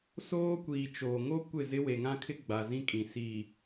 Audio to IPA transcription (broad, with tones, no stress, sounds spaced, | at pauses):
s oː˦ kʷ iː˨ t͡ʃ oː˨ ŋ o˦ kʷ ɪ˦˨ z ɪ˦ w e˨ ŋ ã˦ kʰ ɪ˦ ɡ͡b a˨ z ĩ˦ kʼ ĩ˨ s iː˨